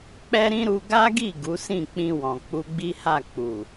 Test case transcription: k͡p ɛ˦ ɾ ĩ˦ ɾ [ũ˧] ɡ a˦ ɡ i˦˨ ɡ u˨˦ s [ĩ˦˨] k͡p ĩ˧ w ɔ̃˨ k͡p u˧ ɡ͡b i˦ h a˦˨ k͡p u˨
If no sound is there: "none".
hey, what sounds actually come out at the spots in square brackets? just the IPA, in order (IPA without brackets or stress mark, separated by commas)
u˧, ĩ˦˨